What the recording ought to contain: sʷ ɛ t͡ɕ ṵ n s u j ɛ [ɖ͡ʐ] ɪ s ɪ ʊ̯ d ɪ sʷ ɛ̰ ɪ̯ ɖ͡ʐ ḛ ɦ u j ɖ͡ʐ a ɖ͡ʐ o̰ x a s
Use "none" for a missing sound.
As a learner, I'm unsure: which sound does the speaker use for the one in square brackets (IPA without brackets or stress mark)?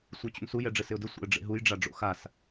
ɖ͡ʐ